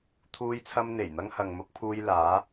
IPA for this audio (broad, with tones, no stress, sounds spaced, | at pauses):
t̪ʰ uː˧ j t͡sʰ ɐ˧ m n̪ e˨˩ j n̪ ɐ˧ ŋ h ɐ˨ ŋ m ʊ˧ k̚ pʰ uː˧ j l aː˨˧